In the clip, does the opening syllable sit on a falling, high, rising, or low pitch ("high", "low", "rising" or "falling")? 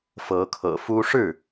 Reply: rising